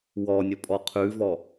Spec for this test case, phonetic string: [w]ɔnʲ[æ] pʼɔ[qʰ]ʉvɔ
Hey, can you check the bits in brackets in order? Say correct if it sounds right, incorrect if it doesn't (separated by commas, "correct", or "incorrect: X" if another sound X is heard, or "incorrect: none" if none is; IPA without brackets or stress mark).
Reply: correct, incorrect: ə, correct